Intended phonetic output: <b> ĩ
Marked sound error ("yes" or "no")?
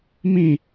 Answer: yes